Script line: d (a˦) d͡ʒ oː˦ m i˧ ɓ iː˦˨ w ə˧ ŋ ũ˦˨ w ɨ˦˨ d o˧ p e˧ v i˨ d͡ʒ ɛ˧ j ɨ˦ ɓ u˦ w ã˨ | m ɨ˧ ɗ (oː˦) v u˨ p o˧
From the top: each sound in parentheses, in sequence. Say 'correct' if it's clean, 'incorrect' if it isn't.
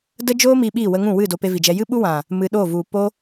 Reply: incorrect, incorrect

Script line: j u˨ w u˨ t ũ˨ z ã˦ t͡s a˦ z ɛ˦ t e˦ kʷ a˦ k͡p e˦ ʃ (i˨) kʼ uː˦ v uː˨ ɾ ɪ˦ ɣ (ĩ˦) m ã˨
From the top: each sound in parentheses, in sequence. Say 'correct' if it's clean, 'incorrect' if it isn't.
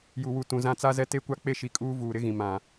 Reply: correct, incorrect

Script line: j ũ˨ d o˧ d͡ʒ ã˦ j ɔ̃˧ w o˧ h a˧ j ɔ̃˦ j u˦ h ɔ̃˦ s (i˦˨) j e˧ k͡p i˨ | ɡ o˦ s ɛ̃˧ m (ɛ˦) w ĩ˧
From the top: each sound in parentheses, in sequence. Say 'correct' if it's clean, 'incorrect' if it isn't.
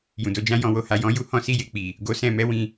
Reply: correct, correct

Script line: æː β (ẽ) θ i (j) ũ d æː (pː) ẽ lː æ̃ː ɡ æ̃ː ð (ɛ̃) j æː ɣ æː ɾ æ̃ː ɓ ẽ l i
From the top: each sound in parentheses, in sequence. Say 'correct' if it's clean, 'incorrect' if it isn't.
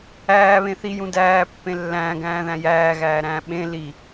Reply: correct, correct, correct, incorrect

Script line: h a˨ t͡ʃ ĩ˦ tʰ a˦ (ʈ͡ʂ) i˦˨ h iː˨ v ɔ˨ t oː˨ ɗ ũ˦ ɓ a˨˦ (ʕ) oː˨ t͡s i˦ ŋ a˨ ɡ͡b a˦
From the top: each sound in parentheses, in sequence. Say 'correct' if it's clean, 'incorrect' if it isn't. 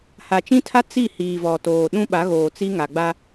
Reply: incorrect, incorrect

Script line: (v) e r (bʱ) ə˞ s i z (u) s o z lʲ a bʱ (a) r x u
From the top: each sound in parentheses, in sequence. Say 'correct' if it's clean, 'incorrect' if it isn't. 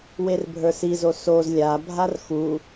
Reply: incorrect, correct, incorrect, correct

